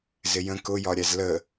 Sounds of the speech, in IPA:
z ɪ j ə̃ k ʊ j ɒ ɾʲ æ z l ə

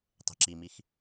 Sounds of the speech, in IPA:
tˤ e̤ ǁ i m i x

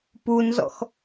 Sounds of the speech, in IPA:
p u n z ɔ̰ x

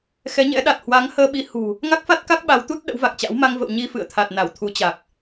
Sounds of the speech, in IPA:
x ɛ˨˦ ɲ ɛ̰˧˥ ɗ a˨˩ t̚ h w a˨˦ ŋ h əː˧ ɓ i˨˦ h ṳ˨˩ | ŋ a˦˥ k̚ f a˦˥ t̚ k a˦˥ k̚ ɓ a˨˦ w t̪ u˦˥ t̚ ɗ ə̰˧˥ w v a˨˩ k̚ t͡ɕ a̰˧˥ w m a˧ ŋ v ə̰˧˨ w ɲ i˧ f ɨ̰˧˨ ə̯ t̪ʰ a˨˩ t̚ n a˧˩ w t̪ʰ u˨˦ t͡ɕ a˨˩ k̚

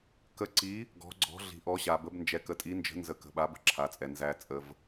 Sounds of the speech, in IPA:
k ə˨˦ ǀ i˨˦ | ɡ ɔ̤˨˦ ɡ͡ǀ ɔ̤˨˦ ɮ i̤˨ ʔ ɔ˨˦ ɕ a˨ b ə˨˦ b n d͡ʒ ɛ˨ k ə˨ tʼ i˨˦ n d͡ʒ ə̤˨˦ n z ə˨˦ k ə̤˨ ɓ a˨˦ b ə̤˨˦ ǁʰ a˨˦ t͡sʼ ɛ˨ n z æ˨ t͡sʼ ə˨ v

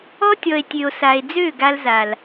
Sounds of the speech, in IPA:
ɔ˦ tʲ ɔ˨ e̯ tʲ ø˨ o̯ s a˨ e̯ d͡z ø˦˨ ɡ a˦ l z a˨ l

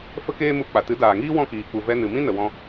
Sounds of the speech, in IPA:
f ə˦ k eː˦ m u˧ k͡p a˨ t ɨ˨˦ d aː˨ ŋ iː˦ w ɔ̃˦˨ k iː˨ k͡p u˨ v ɛ˧ n ɨ˨ m ĩ˦ n ə˨ w ɔ̃˧

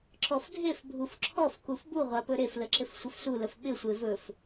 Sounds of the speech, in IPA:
ǁ ɔ f dʱ e f bʱ u f ǁʰ ɔ f k u f b u ʁʷ a p ɵ ɾ e f l ə ǁ ɪ f sʷ ɪ f s u l ə f ɓ ɪ sʷ e v ɵ f

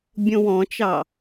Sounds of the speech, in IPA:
bʲ õ w ɔ̃ t͡ʃ ɑ

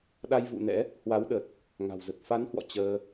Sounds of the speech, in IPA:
ɗ a˧ j v ṵ˧˨ n ɛ̰˧˥ | h w a˨˦ w ɗ ə˨˩ t̚ | ŋ a̤˨˩ w z ə˨˩ t̚ f a˨˦ n h w ɔ̰˧˨ t͡ɕ əː˧

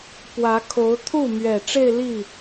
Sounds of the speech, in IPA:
p w ä˧˥ kʰ o˧˥ ʊ̯ t̪ʰ u˥˩ m ɥ ɛ˨˩ ʈ͡ʂ e˥˧ ɪ̯ l i˥˩

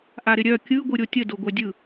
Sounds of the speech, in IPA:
ʔ a ɾ ɪ ɾʲ œ kʲ ɯ ɡʷ ɯ ɾʲ o tʲ ə d o ɡʷ œ dʲ ɯ

